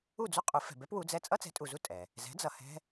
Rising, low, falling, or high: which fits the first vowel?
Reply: falling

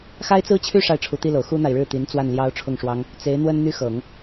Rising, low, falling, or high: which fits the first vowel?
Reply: high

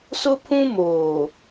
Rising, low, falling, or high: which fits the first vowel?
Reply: high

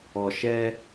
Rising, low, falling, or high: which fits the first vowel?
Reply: low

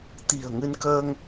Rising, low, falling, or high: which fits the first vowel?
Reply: low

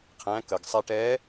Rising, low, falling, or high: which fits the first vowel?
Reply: rising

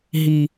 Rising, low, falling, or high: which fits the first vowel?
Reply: low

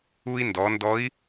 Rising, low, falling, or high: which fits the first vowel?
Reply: high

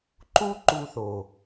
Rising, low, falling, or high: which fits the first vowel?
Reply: high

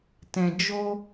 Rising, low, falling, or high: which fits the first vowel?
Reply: low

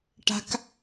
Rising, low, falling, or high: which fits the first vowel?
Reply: high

